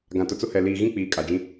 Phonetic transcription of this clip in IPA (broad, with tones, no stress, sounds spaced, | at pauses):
ɡ ã˨ t ʊ˨ t͡s ʊ˦ h ɛ˨ l iː˨ ɣ ĩ˦ k͡p iː˨ kʼ a˨ d͡ʒ ĩ˦